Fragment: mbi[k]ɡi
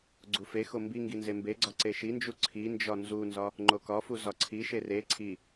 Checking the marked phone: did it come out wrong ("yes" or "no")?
yes